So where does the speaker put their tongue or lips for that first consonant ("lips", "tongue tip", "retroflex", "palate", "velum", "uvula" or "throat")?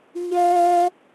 palate